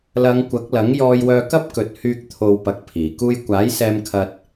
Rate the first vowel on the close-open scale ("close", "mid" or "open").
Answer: open